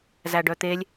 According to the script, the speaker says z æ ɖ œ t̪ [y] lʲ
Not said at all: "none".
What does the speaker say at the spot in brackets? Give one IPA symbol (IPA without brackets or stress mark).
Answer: e